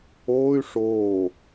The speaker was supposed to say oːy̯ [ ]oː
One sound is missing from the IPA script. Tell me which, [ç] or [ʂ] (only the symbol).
ʂ